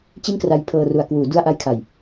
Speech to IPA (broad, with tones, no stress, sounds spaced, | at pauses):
t͡ɕ i˥˩ n k r a˧ j pʰ ɤː˧ r u˨˩ a̯ k w uː˩˦ d u˧ a̯ ʔ a˦˥ j kʰ a˨˩ j